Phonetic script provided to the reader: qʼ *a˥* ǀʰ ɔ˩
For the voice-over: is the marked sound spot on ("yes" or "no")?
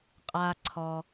no